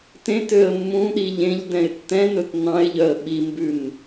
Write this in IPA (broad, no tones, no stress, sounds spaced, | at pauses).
t ẽ t ø ə̯ mː ũ ɗ i ʎ ẽ ʎ d ɛ̃ ɪ̯ tː ɛ̃ n ɵ t n ɑ̃ ɪ̯ ʎ œ ə̯ ɓ i m b ʉ n